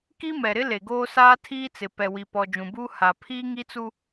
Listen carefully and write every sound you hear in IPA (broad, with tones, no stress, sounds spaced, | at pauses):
k i˦ m ɛ˨ ɾ ɪ˦ l e˨ ɡ oː˦ s aː˦ tʰ iː˦ t͡s ɪ˨ p ɛ˨ w i˨ p ɔ˨ d͡ʒ ũ˨ b uː˦ h a˨ pʰ iː˦ ŋ i˦ t͡s u˦